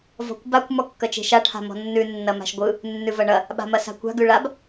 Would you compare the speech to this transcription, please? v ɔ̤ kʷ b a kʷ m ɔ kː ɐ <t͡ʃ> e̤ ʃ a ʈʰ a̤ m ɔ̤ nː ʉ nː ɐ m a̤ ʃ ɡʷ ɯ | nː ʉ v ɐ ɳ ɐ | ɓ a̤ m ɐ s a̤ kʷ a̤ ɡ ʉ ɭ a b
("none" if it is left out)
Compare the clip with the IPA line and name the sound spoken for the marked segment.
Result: t͡ʃ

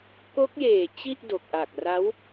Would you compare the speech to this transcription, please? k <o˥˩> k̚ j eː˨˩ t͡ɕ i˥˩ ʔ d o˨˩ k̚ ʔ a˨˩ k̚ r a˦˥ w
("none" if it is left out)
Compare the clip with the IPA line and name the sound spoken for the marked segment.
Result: o˦˥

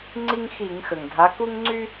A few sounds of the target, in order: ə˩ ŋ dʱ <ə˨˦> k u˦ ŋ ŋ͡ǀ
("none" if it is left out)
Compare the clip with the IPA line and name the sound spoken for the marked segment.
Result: a˨˦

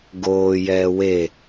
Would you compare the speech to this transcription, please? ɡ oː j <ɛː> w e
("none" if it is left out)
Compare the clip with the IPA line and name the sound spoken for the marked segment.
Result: ɛː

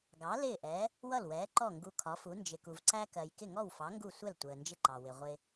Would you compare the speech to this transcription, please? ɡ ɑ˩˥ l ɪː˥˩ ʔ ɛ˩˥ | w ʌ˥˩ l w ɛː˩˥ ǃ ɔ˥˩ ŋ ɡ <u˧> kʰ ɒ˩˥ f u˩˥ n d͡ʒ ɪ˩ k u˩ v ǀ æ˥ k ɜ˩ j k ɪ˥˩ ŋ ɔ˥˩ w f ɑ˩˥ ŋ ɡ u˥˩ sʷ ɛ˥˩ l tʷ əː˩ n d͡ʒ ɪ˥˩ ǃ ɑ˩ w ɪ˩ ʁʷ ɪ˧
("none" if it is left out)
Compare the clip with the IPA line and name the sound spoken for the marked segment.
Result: u˧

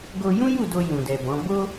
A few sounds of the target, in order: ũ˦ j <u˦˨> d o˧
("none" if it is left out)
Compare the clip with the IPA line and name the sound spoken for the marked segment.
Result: u˦˨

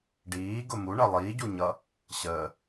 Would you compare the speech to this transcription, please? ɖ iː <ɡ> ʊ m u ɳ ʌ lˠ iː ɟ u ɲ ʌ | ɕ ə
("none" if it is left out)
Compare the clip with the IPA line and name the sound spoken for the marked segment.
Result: ɡ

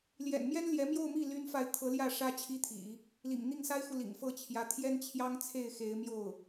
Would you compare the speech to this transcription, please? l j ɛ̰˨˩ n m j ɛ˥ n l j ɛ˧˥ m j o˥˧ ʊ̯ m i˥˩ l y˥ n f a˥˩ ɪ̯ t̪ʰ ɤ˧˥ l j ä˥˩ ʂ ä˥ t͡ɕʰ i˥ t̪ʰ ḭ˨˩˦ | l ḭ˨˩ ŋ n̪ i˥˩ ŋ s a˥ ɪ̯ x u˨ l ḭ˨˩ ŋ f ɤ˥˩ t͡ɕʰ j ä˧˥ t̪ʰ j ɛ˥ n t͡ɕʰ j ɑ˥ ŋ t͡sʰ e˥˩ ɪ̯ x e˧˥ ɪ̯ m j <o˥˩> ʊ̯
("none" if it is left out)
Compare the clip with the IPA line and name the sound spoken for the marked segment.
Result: o˥˩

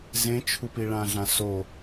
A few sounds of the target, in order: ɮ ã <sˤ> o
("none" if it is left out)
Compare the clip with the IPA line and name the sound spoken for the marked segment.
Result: s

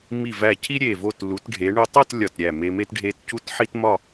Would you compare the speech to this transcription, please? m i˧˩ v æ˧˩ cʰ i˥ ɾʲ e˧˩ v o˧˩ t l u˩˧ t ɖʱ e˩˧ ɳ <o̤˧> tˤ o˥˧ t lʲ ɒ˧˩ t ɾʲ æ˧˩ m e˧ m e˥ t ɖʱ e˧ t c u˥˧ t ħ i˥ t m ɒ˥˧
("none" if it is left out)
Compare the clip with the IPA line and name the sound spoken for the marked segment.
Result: o˧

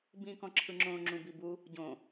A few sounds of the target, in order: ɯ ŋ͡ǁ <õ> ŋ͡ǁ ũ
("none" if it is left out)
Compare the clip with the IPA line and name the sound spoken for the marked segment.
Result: õ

